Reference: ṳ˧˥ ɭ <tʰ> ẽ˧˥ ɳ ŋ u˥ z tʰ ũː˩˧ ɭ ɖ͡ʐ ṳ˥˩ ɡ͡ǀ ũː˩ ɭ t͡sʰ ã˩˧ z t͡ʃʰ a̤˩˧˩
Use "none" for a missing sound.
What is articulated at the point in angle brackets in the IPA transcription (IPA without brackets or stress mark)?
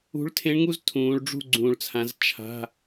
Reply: tʰ